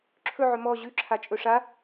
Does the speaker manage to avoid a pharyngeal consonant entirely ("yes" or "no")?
no